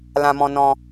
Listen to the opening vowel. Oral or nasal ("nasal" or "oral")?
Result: nasal